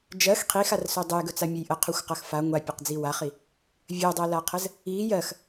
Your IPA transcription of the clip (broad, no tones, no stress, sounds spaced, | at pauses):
d͡ʒ ɜ x qʰ i x a r s ɵ dˤ ə j ɡ ɵ t͡s a mʲ ə j ʔ ə qʰ ɵ xʷ q ɜ x f a ŋʷ a pʲ ə q d͡z i w a χ i | vʲ ɜ dˤ ɜ l a qʰ ə z | i j ɜ x